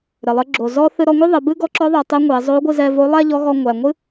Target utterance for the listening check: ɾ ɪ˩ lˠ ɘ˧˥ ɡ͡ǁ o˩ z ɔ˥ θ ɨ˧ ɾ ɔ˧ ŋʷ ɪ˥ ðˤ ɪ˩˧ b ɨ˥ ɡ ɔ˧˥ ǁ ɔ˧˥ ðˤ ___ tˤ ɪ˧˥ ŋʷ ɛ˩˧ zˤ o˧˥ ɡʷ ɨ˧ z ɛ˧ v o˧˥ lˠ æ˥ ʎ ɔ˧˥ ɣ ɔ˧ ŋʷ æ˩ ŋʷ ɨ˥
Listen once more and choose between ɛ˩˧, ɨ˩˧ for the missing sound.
ɛ˩˧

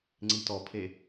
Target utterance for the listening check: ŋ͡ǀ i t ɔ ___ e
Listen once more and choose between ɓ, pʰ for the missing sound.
pʰ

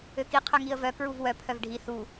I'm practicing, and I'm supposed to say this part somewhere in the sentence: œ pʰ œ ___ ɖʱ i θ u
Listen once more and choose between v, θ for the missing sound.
v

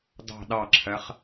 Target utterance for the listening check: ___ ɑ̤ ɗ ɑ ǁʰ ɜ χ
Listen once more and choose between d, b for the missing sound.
d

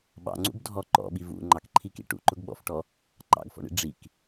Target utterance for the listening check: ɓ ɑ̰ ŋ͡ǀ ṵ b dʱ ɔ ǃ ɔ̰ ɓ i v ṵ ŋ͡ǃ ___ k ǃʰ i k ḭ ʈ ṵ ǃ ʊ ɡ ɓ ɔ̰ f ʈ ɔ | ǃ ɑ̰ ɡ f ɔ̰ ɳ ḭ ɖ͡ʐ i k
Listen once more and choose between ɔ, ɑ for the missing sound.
ɑ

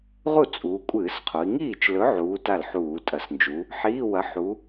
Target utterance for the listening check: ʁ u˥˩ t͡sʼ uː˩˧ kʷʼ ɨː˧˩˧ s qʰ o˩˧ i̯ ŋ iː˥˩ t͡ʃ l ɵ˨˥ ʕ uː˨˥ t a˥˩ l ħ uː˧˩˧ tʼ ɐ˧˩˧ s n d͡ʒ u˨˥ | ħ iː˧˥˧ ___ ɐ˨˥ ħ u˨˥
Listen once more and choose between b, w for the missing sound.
w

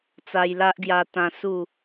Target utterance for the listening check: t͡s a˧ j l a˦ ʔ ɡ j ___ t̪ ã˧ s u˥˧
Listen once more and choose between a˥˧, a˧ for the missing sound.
a˧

